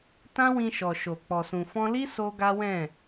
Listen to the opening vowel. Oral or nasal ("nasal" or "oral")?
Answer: nasal